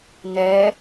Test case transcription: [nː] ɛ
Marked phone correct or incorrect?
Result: incorrect